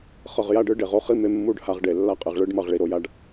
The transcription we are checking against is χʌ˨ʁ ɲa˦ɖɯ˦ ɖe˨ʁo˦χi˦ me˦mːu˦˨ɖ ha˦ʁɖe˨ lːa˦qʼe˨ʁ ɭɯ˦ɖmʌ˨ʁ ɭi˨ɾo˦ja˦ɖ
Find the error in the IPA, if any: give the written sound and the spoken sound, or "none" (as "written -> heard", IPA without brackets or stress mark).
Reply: ɲ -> j